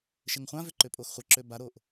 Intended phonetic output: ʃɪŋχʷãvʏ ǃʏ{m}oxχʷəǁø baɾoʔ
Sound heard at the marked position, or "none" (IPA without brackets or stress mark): pʼ